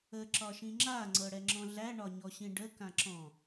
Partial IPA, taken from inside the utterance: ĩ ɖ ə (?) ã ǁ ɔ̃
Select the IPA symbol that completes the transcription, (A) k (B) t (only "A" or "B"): A